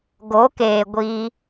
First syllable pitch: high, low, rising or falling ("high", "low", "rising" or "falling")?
rising